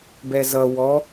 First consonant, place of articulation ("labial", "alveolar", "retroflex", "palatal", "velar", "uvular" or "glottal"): labial